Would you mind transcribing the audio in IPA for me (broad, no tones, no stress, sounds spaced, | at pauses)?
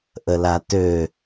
ʔ ə l a t ø